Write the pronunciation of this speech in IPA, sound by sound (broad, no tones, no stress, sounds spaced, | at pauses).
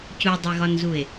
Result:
c u dˤ e ɣ ɒ n z u e̯